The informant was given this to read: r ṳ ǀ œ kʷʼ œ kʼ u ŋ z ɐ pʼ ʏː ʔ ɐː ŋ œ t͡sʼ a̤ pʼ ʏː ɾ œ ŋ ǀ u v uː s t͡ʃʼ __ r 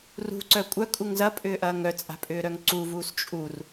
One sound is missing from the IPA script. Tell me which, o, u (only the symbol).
u